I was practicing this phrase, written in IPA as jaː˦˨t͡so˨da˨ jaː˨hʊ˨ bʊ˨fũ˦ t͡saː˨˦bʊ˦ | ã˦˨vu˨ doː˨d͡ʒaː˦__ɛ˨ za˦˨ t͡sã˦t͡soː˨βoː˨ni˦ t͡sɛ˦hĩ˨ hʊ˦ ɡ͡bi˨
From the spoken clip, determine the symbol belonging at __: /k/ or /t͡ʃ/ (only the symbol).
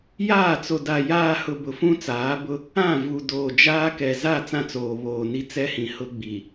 k